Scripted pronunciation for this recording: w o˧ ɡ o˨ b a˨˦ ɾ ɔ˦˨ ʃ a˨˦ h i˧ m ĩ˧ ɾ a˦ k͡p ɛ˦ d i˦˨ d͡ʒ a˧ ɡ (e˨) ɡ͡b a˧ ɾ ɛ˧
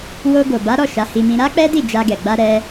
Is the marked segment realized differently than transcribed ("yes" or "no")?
yes